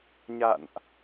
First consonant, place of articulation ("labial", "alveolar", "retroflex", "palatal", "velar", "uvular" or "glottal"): palatal